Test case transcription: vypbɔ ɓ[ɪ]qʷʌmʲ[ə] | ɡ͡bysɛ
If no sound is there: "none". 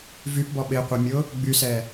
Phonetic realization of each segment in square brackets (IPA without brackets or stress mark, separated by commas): ɪ, ʊ